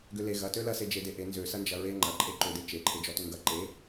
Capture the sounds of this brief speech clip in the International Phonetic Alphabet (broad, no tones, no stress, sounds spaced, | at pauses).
ɡ ʏ l e ɣ ɐ t ø l ɐ s e d͡ʒ e d e ʔ e n z ø s ɐ n d͡ʒ ɐ ɹ e ŋ͡ǃ ɐ ǃʼ e ǃ ʏ d e t͡ʃ e ǃʰ e d͡ʒ ɔ t ʏ ŋ ɡ ɐ ǃ e